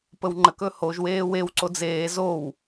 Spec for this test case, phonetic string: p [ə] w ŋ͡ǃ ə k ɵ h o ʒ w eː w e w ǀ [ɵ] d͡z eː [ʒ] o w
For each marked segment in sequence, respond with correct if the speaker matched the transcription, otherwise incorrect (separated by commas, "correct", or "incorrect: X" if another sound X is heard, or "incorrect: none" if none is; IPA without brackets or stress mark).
correct, incorrect: o, incorrect: z